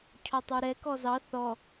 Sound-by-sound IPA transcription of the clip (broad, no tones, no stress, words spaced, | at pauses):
cʰɔtˤə˞ɾɛ kɔzɑ θɔ